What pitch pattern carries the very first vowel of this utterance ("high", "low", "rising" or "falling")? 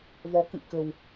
rising